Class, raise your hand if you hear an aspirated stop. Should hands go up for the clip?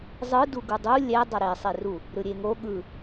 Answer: no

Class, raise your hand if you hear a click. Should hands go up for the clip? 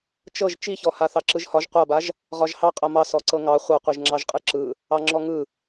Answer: yes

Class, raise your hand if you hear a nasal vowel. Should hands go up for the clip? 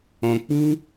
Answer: yes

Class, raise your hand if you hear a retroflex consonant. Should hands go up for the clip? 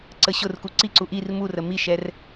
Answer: no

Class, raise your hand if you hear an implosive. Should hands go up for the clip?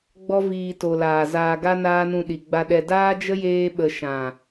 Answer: yes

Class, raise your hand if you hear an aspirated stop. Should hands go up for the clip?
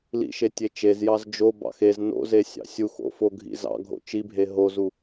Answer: no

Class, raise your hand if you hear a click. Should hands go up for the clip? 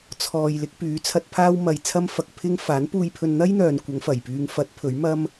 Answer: no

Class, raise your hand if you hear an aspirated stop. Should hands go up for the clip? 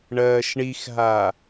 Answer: no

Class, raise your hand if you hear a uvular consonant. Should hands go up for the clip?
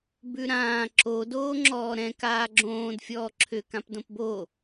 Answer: no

